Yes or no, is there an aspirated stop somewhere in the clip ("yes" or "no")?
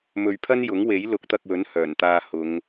yes